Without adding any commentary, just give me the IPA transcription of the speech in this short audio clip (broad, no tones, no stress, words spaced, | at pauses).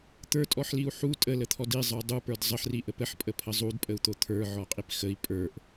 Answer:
t̪ə˞tʼɔħliu̯ ħu tʼələt̪ʰɔd izˤə˞ dˤupə˞d zˤəħriʔəp əħpʼəpʰə zˤudpʼəu̯t̪o t̪ʰə˞ʕɔqʼip xəi̯ pʼə˞ʔ